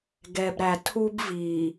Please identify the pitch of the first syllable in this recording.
low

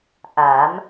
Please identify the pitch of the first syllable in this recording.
rising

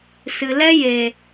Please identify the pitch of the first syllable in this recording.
low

